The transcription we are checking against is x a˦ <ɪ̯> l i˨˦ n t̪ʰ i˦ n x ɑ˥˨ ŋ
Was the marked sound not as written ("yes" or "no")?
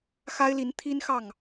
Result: no